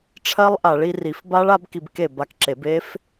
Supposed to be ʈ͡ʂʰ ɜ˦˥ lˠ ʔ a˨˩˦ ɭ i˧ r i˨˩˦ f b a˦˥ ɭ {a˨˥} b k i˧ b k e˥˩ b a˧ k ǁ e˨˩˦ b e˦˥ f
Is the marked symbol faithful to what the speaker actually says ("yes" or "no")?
yes